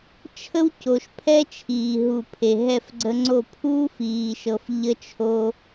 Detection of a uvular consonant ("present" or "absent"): absent